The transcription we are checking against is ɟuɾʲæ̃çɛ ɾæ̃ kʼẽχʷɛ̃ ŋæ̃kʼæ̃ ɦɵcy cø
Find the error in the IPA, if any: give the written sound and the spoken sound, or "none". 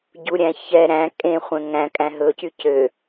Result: none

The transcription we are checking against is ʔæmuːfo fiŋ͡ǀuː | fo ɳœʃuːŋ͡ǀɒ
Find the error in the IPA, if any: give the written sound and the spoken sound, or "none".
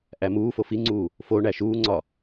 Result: œ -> æ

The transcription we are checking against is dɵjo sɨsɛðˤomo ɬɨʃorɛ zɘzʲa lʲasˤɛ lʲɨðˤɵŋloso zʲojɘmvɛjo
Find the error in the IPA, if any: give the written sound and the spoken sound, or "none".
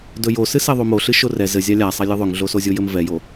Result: l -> ɮ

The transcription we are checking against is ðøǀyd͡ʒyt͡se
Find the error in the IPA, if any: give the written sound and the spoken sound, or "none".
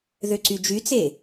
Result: none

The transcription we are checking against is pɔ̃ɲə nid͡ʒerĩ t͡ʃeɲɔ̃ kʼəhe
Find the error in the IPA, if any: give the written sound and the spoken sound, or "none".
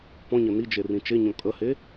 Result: none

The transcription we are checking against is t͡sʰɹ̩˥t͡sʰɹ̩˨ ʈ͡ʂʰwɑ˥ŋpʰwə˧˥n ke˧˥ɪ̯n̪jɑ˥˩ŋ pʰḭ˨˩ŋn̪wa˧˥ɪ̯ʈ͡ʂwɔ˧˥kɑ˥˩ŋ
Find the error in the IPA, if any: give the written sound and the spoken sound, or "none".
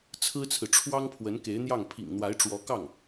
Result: none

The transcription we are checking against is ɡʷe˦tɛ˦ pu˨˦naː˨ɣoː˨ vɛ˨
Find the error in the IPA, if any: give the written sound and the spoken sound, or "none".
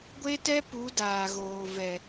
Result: n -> d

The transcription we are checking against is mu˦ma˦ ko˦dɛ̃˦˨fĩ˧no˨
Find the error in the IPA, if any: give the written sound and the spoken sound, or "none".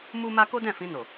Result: none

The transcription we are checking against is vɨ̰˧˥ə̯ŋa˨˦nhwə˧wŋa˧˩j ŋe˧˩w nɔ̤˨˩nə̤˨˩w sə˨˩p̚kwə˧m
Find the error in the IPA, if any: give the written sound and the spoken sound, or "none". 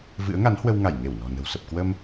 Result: none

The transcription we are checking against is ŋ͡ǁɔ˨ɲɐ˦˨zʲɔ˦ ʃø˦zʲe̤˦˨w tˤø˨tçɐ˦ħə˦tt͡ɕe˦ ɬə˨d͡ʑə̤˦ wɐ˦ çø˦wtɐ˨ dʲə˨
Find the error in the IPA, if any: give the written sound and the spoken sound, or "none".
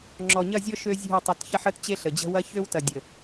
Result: none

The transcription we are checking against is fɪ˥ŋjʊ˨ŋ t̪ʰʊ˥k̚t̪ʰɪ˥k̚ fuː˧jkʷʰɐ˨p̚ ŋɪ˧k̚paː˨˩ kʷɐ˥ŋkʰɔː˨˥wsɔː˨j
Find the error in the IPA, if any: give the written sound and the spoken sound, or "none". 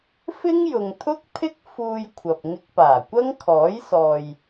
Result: w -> j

